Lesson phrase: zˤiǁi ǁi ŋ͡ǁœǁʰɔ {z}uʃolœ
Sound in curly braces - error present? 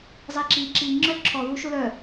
yes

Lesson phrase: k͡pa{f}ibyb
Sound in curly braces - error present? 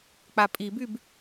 yes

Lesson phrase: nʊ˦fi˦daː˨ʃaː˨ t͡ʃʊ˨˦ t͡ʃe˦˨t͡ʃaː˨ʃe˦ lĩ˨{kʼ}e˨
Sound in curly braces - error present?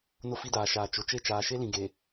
yes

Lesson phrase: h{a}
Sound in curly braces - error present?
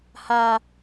no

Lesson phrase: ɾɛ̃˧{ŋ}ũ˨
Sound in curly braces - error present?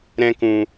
yes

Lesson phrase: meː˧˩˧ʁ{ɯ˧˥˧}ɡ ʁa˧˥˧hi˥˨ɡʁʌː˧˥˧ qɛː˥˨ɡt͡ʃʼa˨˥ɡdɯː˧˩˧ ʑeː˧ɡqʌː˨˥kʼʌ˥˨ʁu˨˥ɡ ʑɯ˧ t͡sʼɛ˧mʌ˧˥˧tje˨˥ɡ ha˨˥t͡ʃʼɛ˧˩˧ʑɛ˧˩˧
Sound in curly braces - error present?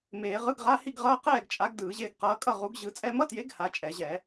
no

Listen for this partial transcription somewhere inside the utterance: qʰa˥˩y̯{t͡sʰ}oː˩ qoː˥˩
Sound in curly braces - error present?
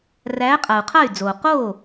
yes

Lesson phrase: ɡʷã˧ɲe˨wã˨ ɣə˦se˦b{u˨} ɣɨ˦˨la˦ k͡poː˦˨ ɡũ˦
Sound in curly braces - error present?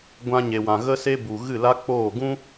no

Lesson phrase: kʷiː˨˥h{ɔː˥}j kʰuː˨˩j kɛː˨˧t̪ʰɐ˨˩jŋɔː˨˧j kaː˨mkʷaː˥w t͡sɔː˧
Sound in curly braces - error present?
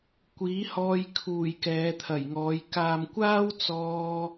yes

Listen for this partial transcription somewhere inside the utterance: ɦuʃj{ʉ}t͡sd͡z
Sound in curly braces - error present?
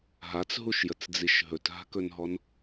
yes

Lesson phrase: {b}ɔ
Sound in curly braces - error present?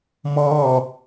yes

